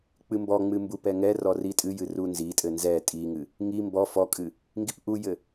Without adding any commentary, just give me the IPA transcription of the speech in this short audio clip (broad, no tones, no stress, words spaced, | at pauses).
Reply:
k͡pɨmbɔŋ͡mɨ mbupɛŋɛrɔ ritʼɨjɨ runzitʼɘ nzɛ tʼiŋɨ | ŋi mbɔ fɔkʼɨ | ŋɡipʔujɘ